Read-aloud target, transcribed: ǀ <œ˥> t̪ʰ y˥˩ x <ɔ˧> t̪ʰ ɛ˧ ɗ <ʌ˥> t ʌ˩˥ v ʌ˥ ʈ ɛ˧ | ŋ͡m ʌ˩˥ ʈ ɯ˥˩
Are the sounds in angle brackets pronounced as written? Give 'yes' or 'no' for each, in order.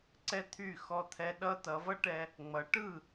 no, yes, yes

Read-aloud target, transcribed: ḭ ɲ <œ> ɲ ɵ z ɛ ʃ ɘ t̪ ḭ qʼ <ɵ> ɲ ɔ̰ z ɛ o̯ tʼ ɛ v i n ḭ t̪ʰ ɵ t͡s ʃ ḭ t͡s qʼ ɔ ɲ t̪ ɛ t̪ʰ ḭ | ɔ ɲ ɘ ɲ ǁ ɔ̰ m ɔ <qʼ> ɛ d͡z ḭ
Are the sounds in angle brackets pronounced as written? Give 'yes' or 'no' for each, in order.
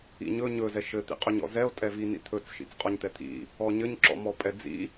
no, yes, no

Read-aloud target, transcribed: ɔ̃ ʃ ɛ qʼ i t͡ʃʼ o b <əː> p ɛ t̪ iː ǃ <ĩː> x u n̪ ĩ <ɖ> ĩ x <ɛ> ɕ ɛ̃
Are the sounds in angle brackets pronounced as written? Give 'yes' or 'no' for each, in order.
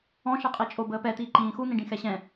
yes, yes, yes, yes

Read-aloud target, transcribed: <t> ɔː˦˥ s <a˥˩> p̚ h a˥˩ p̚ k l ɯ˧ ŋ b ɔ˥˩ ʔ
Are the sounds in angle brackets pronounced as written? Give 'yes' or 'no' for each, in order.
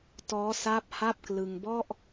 yes, no

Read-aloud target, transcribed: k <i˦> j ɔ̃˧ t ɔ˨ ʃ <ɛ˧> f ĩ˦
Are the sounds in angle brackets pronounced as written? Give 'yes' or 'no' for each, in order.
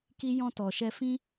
yes, yes

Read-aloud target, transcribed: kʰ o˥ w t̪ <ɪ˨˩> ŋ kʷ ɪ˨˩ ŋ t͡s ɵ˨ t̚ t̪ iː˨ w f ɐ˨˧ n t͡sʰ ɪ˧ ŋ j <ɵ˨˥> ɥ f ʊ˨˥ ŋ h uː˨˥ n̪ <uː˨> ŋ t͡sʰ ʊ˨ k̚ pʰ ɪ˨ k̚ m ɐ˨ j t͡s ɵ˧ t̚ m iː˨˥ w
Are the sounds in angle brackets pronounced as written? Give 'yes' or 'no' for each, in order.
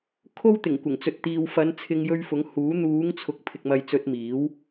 yes, no, no

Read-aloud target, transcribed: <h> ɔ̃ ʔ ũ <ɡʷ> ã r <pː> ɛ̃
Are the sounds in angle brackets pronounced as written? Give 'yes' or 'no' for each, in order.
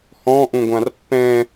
yes, yes, yes

